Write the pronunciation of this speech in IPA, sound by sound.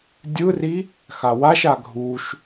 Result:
dʲ ɯ r i | x a w a ʃ a ɡʱ u ʃ

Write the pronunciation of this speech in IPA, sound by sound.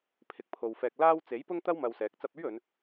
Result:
pʰ ɪ˨˥ k̚ pʰ o˨ w f ɛː˧ k̚ l aː˥ w t͡s e˨˥ j p ʊ˥ ŋ t̪ ɐ˥ w m ɐ˧ w s ɛː˨˥ k̚ t͡s ɐ˧ p̚ ɵ˥ ɥ ɵ˨˧ n

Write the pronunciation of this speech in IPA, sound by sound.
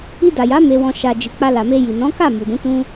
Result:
i˧ d a˨ j a˨˦ m e˧ w ɔ̃˧ ʃ a˨ d͡ʒ i˨ k͡p a˧ l a˨ m e˧ j i˨ n ɔ̃˨˦ k a˦˨ m u˨ d ũ˨˦ t ũ˦

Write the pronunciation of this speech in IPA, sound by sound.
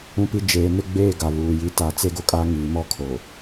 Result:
ũ˦˨ p i˦ d͡ʒ eː˨ n ɪ˦ ɡ͡b eː˦˨ ɡ a˨ β uː˨ j i˦ t a˦˨ t͡s e˦ ɡ o˦ kʼ a˦ ŋ iː˨ m ɔ˦ kʰ o˨

